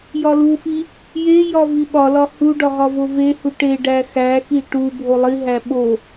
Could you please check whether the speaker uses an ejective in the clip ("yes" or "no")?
no